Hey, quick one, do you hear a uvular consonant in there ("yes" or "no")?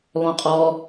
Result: yes